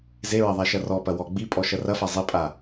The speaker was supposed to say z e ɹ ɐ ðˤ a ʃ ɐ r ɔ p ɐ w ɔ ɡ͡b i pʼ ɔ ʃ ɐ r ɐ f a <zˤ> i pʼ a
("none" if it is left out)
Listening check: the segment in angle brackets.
zˤ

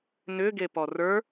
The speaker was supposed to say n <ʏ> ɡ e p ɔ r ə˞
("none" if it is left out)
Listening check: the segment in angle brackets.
ʏ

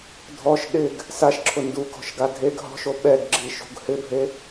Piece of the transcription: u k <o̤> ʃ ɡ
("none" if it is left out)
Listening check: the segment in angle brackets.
ɔ̤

